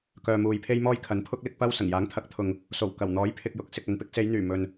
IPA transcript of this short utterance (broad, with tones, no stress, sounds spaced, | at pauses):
k œː˨ m uː˨ j pʰ e˥ j m ɔː˥ j kʰ ɐ˨˥ n pʰ ʊ˥ k̚ l ɪ˥ k̚ p ɐ˥ w s ɐ˨˩ ŋ j aː˨˥ ŋ t̪ʰ ɐ˨˥ k̚ t̪ʰ ʊ˨ ŋ | s o˨˩ w k ɐ˨˩ w n̪ ɔː˨˥ j pʰ ɪ˨ k̚ j ʊ˨˥ k̚ s ɪ˨ k̚ ɐ˨ n p ɪ˥ k̚ s e˨˧ j n̪ yː˨˩ m ɵ˨ n